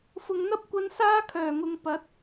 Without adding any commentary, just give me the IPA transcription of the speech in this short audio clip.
fʊ˨ŋn̪ɐ˥p̚kʷɐ˧n saː˥kʰœː˨˩ŋʊ˨ŋ pɐ˨˥t̚

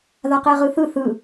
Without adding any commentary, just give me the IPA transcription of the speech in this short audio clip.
ðaqeʁɯθɯ θɯ

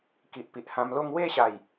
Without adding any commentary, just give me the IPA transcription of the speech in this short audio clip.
ki˨ʔpi˨ʔhã˧mlo˥˧ŋ we˥˧ɕa˨˩j

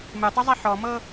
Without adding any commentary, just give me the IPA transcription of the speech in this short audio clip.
mɨtˤʉzˤi ħɔmɤ

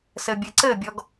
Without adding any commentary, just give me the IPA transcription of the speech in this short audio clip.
sɘbʲɘǀɘbʲɔɡ

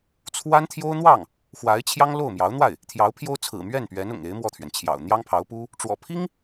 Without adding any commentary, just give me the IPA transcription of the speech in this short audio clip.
t͡sʰwa˥nt̪ʰjo˥ʊ̯n̪wɑ˥˩ŋ | xwa˧˥ɪ̯t͡ɕʰjɑ˥ŋlo˥˩ʊ̯ mjɑ˧˥ʊ̯n̪wa˥˩ɪ̯ | t̪ʰjɑ˧˥ʊ̯pʰjo˥ʊ̯t͡sʰɹ̩˨˩ mɥɛ˥˩npɥɛ˧˥n ʊ̰˨˩ŋe˧˥ɪ̯ mwɔ˥˩t̪ʰɥɛ˩nt͡ɕʰjɑ̰˨˩ʊ̯ n̪jɑ˥ŋpʰɑ˧˥ʊ̯pu˥ | ʈ͡ʂwɔ̰˨˩pʰi˥ŋ

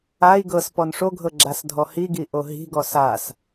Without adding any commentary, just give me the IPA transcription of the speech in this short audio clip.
ai̯ ɡɤs pɔnʂoɡʱɤ ɡ͡ǁasdʱɔhiɡi ʔoɦi̤ɡɔ sas

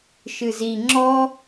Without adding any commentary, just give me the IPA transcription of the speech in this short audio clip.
ʃɨzi ŋ͡ǁɔ

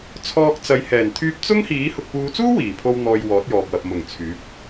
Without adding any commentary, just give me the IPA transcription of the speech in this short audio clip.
t͡sʰɔː˧k̚t͡sɐ˨˧j hɛː˨˩nt̪ʰyː˧p̚t͡sʊ˥ŋhiː˨˥ hʊ˨k̚puː˨˧t͡suː˥ wiː˨˩pʰo˧w n̪ɔː˨j wɔː˨˥t̚jɔː˨p̚wɐ˨p̚ mʊ˨˩ŋ t͡sʰyː˨˥p̚

